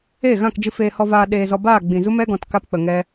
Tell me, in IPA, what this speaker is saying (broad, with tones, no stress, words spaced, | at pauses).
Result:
eː˦˨ɣã˦˨kd͡ʒɨ˧ feː˧hɔ˧vaː˧ ɗeː˧zɔ˧ baː˦˨ɡ͡bĩ˨zu˦ mɛ˦ɡɔ̃˨t ka˦pk͡pə˨ŋɛ˦